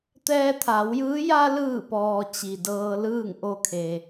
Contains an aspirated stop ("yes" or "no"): yes